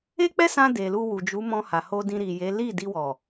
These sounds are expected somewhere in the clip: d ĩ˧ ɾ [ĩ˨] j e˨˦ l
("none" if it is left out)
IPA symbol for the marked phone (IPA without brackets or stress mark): i˨